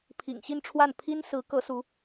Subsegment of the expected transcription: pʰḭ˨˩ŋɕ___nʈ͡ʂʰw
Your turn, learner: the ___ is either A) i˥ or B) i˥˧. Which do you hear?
B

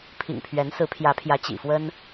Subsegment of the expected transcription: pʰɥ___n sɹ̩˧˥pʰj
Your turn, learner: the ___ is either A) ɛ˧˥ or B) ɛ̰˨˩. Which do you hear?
A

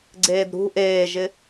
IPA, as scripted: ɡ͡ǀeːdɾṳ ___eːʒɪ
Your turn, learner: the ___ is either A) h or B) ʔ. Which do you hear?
B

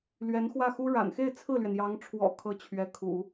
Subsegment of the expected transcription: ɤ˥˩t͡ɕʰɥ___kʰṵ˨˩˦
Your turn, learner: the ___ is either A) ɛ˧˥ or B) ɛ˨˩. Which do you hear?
A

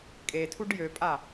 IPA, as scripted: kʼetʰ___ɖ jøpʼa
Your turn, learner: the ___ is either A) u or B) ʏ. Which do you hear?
A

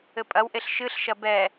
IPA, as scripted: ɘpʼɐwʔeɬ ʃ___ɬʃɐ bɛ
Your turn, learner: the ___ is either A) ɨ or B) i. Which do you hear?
A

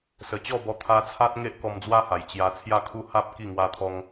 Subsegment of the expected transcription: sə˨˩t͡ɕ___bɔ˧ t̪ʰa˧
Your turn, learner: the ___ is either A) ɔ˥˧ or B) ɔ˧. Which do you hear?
A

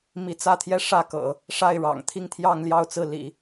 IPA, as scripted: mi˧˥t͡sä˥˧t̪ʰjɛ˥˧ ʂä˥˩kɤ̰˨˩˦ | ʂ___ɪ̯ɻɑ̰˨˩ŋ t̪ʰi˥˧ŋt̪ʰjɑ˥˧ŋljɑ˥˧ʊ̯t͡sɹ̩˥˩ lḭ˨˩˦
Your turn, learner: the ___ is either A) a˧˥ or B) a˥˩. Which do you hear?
B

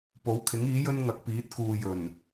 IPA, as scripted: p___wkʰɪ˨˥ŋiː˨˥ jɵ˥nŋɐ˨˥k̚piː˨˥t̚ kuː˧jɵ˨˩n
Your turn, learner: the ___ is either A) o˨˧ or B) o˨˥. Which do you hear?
B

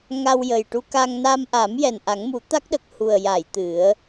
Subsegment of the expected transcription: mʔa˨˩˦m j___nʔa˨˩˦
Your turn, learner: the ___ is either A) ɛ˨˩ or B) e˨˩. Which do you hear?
A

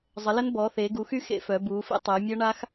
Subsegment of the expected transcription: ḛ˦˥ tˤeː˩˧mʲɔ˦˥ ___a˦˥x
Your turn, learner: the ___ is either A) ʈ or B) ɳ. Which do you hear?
B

